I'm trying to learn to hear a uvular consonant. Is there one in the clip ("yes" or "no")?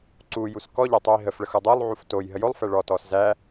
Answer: no